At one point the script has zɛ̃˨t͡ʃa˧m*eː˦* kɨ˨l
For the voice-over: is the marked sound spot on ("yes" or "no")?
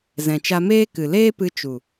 yes